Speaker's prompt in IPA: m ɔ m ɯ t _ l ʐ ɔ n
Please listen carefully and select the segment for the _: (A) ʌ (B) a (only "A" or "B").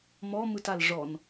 B